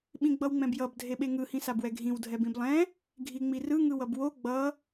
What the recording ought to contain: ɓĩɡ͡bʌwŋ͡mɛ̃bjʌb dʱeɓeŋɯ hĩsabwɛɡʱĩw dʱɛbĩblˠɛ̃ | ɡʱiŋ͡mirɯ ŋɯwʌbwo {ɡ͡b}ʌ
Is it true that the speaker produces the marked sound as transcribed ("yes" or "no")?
yes